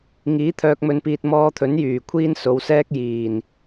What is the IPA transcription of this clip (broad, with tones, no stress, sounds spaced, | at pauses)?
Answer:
ŋ iː˨˥ t̪ʰ œː˨ k̚ m ɵ˨ n p iː˨ t̚ m ɔː˧ t̪ʰ ɵ˨˥ n j yː˨˩ kʷʰ iː˥ n s o˨˧ w s ɛː˥ k̚ j iː˨˩ n